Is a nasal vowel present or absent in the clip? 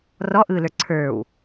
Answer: absent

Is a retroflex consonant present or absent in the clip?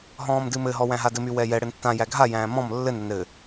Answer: present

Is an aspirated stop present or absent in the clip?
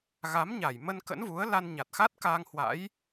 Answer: absent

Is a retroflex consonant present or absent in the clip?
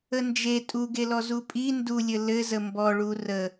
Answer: present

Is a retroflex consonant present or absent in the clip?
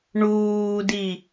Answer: present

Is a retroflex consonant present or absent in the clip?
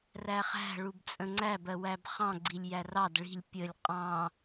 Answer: present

